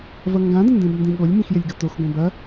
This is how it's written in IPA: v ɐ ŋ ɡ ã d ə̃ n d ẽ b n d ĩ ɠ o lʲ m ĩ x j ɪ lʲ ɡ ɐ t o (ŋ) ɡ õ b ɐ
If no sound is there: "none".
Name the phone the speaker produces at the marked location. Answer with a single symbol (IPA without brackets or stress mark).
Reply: x